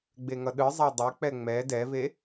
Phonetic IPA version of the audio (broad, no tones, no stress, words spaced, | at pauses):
ɡ͡beŋʌɗɯzˤa dˤɛk͡pɛ ŋ͡mɛ dɛve